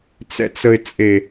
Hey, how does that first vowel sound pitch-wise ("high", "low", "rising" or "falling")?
low